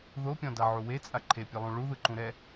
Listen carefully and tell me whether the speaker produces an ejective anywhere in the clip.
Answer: yes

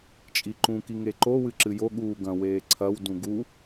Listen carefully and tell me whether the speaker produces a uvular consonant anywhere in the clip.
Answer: no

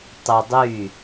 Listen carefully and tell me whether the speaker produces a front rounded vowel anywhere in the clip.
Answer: yes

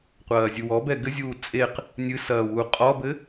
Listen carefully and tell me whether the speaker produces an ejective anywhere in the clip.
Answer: yes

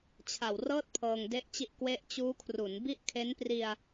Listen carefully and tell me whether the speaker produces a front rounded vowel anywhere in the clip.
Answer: no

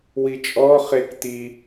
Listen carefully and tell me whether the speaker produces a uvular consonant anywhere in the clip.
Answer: yes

